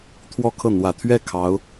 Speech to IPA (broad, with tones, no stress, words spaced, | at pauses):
t̪ʰwɔ˥˧kʰɤ˥˩ n̪wä˨˩t̪ʰɥɛ˥˩ kʰɑ˧˥ʊ̯